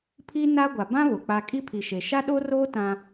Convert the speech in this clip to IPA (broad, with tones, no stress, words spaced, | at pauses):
pʰi˦ na˦ɡʷa˨ bã˦ βʊ˨k͡pa˦ kʼi˦pʰi˨ʃe˨ ʃa˦ɗo˦roː˦ tã˦